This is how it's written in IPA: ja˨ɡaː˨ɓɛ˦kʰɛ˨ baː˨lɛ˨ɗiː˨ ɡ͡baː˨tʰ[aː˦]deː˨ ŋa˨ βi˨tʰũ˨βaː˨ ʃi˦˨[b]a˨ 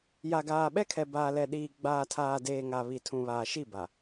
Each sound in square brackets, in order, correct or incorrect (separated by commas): incorrect, correct